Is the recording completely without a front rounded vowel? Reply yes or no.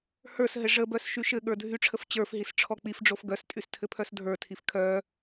no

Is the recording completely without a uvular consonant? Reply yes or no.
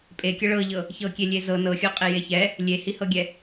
no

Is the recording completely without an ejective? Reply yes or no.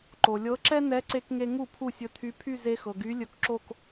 yes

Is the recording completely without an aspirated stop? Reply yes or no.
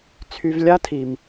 no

